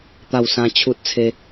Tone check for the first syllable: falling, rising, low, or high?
falling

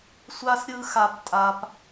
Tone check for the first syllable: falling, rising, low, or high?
high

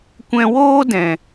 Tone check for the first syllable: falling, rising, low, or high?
high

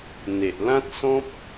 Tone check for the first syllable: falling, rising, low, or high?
low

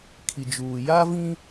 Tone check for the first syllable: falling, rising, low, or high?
low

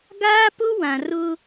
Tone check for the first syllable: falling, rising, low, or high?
high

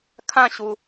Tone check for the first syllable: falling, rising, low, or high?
falling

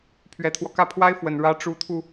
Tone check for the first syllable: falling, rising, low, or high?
rising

